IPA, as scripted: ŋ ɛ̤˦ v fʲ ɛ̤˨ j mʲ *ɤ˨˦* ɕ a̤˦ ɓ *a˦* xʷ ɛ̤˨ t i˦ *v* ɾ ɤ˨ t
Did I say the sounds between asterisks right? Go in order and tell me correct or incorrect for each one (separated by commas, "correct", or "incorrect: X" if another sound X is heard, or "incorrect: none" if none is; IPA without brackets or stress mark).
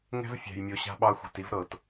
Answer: incorrect: o˨˦, incorrect: ɑ˦, correct